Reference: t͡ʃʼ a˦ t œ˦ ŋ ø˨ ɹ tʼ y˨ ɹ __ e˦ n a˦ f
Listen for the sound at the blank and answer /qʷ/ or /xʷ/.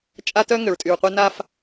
qʷ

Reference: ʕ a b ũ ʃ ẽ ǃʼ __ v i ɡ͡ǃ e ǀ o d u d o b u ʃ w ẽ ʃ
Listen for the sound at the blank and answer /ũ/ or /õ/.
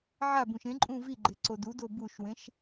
ũ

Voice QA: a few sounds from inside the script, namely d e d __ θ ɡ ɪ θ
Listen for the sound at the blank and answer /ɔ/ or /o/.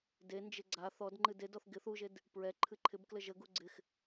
ɔ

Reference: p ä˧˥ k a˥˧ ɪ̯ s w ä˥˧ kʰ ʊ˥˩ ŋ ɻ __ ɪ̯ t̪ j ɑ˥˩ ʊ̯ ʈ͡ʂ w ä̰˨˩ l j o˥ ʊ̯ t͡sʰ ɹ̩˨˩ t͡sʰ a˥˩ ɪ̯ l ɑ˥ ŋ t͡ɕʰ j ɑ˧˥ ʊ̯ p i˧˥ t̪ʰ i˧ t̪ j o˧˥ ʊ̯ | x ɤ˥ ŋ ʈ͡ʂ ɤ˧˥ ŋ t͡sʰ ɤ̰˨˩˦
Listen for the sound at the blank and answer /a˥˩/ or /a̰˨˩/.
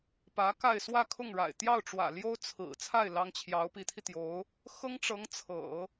a̰˨˩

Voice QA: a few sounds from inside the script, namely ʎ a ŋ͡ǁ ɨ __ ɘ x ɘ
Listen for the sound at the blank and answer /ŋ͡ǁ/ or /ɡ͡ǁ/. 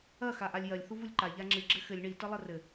ɡ͡ǁ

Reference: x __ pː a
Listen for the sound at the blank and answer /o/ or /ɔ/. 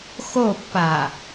o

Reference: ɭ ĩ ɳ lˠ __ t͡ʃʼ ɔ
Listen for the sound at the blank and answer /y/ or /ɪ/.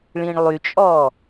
y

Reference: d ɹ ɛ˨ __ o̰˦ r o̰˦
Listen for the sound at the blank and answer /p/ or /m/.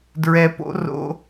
p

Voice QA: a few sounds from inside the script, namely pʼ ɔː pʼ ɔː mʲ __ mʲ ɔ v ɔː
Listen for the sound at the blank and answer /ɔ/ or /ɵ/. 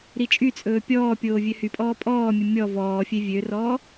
ɵ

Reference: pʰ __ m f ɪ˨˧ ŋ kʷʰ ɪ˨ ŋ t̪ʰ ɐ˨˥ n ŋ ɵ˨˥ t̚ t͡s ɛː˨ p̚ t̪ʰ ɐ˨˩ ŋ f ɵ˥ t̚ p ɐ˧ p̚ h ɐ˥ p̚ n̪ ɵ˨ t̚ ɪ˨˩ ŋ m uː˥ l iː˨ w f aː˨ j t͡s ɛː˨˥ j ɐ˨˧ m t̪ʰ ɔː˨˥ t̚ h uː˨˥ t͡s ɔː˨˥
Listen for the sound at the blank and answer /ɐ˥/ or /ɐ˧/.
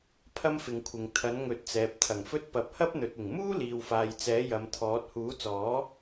ɐ˥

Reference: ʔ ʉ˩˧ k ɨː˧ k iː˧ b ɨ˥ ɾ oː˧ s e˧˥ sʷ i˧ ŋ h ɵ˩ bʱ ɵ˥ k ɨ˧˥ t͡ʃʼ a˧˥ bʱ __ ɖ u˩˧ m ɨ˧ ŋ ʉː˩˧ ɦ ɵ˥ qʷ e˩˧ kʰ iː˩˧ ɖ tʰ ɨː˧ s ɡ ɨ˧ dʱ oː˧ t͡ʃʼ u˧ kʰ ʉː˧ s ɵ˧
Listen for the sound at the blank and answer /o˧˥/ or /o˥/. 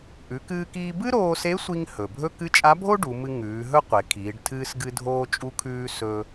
o˥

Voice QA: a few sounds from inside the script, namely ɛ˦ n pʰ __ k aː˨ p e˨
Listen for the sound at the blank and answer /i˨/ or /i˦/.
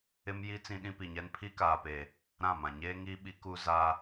i˦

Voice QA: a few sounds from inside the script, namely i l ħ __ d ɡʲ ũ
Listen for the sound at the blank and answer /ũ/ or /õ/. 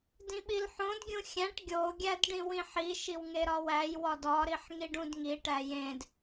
õ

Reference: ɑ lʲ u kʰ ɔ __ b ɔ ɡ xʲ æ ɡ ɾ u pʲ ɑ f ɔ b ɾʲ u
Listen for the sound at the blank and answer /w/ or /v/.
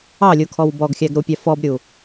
w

